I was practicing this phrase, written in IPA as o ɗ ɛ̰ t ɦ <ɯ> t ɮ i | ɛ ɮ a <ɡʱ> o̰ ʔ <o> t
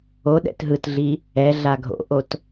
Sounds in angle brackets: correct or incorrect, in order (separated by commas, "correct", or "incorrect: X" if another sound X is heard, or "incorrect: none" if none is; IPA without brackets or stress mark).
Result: correct, correct, correct